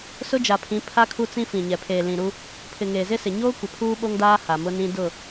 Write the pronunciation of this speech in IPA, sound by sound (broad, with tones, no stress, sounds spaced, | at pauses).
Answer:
s ʊ˦ d͡ʒ a˨ pʰ ĩ˨˦ pʰ a˦ kʰ u˦ t͡s ĩ˦ f ĩ˨ ɲ ɛ˨ pʰ eː˨ l ĩ˨ ɾ u˦ | pʰ ɪ˨ ŋ eː˨ z ɪ˦ s ɪ˨ ɲ oː˦ kʷ ɪ˨ pʰ uː˦ ɓ o˦ ŋ d aː˦ h a˨ m ʊ˦ n ĩ˦ d ʊ˦˨